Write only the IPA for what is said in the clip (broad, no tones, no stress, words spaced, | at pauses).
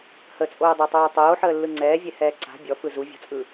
hət͡sʼoːdˤatˤoː tˤoːħəːlːɯ ŋ͡ǀɛːvʲɛhɛː ǀa̤ bʲɔfɯ zuvʲɔ̤t͡sʼɯ